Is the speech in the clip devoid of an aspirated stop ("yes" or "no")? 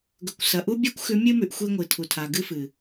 no